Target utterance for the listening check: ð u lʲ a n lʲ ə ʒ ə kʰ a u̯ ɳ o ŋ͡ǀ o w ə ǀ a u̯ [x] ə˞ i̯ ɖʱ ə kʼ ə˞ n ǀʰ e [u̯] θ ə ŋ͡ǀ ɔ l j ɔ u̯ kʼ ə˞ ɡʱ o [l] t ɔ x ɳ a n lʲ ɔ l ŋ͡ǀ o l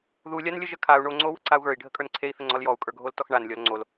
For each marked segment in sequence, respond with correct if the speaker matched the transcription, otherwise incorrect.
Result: incorrect, incorrect, correct

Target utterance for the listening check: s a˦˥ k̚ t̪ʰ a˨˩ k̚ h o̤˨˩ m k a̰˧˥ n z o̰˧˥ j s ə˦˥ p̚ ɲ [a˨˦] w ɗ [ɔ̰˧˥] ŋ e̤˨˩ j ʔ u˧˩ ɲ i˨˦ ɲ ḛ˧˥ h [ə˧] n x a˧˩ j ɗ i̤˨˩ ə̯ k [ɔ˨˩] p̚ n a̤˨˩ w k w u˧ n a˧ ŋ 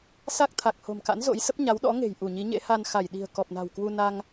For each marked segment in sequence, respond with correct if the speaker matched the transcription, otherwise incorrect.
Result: correct, correct, incorrect, correct

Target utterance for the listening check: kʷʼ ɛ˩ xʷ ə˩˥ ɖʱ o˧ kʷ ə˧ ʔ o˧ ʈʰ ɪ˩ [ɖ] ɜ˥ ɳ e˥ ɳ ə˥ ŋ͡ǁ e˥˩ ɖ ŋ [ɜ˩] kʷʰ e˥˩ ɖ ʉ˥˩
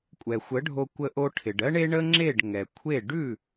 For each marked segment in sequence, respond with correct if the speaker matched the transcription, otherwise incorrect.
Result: correct, incorrect

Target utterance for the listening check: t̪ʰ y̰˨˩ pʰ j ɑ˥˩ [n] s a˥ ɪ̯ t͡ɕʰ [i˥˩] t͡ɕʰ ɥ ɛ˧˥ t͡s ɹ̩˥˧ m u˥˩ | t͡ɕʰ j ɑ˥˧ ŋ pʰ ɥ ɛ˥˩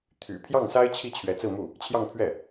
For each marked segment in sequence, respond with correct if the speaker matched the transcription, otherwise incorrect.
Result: incorrect, correct

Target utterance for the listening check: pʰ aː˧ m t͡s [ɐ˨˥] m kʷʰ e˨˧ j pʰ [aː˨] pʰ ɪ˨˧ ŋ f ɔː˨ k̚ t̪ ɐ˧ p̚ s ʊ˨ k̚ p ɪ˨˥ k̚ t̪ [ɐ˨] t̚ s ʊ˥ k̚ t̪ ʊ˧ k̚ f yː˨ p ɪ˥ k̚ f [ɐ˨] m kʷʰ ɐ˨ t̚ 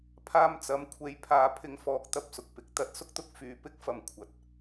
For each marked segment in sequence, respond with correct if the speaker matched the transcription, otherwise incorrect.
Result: correct, correct, incorrect, correct

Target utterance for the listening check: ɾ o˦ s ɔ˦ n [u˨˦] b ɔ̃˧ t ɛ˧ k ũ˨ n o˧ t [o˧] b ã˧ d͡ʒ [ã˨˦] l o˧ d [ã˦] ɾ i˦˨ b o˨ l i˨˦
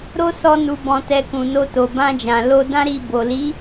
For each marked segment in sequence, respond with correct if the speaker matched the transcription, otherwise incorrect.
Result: incorrect, incorrect, incorrect, correct

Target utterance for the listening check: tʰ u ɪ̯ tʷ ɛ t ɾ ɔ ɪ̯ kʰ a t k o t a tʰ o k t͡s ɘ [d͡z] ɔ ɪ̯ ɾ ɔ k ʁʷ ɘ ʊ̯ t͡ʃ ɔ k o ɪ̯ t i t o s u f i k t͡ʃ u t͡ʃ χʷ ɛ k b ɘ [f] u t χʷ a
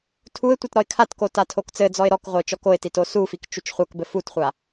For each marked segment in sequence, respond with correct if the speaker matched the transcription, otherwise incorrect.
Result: correct, correct

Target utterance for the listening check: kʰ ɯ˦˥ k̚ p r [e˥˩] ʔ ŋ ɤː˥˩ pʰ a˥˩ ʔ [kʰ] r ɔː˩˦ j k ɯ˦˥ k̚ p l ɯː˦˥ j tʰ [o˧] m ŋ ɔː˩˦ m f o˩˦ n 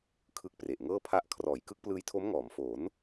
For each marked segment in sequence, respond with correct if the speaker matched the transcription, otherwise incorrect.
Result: incorrect, correct, incorrect

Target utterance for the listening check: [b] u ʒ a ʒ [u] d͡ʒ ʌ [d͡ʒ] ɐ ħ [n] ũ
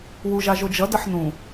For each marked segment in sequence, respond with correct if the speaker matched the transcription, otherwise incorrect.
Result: incorrect, incorrect, incorrect, correct

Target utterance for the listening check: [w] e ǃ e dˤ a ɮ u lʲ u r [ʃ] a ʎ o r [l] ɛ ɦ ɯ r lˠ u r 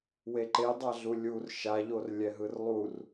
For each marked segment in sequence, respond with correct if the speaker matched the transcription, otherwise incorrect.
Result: correct, correct, incorrect

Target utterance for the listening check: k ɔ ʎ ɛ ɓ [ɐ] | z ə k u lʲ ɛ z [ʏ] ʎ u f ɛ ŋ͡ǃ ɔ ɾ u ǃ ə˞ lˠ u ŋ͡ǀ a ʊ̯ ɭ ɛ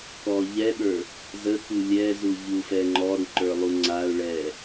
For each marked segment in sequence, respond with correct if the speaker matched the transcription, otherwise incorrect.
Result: incorrect, incorrect

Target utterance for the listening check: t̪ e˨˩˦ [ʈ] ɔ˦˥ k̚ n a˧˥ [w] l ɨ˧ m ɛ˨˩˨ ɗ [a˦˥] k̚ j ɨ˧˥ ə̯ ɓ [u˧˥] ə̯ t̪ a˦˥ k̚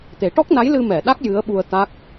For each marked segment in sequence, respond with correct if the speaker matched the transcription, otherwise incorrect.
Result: correct, incorrect, correct, incorrect

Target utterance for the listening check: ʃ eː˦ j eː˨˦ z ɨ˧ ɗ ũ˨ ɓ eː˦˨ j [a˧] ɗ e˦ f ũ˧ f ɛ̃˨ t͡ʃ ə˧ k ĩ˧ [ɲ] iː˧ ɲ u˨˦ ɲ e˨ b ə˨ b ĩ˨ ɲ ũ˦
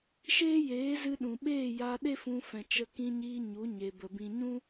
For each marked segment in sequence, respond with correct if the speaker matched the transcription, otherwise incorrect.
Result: correct, correct

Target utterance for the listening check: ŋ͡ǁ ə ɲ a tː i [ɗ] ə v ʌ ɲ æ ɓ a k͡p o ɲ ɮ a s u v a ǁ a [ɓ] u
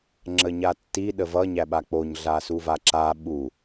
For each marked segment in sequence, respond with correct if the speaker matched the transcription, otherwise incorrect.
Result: correct, correct

